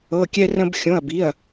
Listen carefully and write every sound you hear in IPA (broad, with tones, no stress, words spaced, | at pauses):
ɤ˩˧˩kʲɛ˧rə̃˧b xʲõ˩˧˩ɐ̯bi˩˧˩ɐ̯